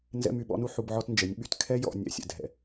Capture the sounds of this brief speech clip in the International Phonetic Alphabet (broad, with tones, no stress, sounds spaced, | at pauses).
n z ɛ̰˦ m y˧ ɓ ɔ̰˦ n u˦ ħ u˧ b ʕ ɔ˦ t n d͡ʒ ɛ˨˦ nʲ ɓ y˦˨ t kʰ ɛ˦ j ɔ̰˨ nʲ ɛ̰˨ sʲ ɛ̰˨ dʱ ɛ̰˨